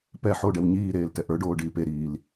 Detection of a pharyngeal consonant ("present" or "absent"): present